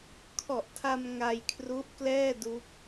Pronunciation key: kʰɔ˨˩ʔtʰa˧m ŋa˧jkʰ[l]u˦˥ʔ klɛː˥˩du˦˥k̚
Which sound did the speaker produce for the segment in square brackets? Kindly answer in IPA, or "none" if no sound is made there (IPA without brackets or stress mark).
r